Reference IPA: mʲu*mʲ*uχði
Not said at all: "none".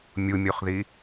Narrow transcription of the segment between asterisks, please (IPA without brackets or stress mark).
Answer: mʲ